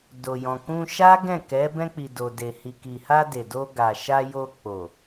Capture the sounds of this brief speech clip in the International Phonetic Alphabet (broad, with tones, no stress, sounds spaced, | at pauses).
d o˨ j ɔ̃˨ k ũ˧ ʃ a˦ ɡ ɛ̃˦˨ k ɛ˨˦ b ɛ̃˧ k͡p i˨ d o˨ d e˨ h i˨ k i˨ h a˧ d e˨ d o˧ ɡ a˨ ʃ a˧ j o˧ k͡p o˨